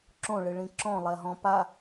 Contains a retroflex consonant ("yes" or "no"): yes